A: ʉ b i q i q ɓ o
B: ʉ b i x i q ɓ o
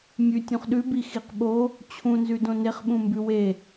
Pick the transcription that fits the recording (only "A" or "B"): B